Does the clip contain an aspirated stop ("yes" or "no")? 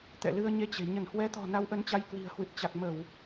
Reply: no